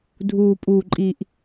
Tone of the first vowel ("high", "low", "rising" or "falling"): low